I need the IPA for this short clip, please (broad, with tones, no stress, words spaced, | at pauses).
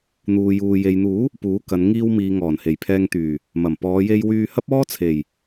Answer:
n̪uː˨juː˨ je˨jn̪uː˨˥ | puː˨˥kɐ˨˧n ŋiː˧wmiː˨ ŋɔː˨˩nhe˨˩jpʰɛː˧ŋt̪yː˨˩ | mɐ˨˩mpɔː˨˧je˧j wyː˧hɐ˥p̚ ɔː˥t͡sʰe˨˩j